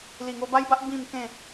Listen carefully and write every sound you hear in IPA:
l i˨˩ ŋ o˧ b a˦ j b a˦ ʔ b ĩ˥˧ m k ẽ˥˧

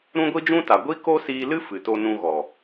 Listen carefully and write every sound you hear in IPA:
ɾ ũ˦ ɡʷ i˦ d͡ʒ ũ˦ t a˨ ɡʷ i˦ k o˦ s iː˧ l ɨ˦ f ɨ˨ t o˧ n ũ˧ ɣ ɔ˨

